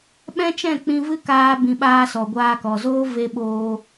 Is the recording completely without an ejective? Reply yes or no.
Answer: yes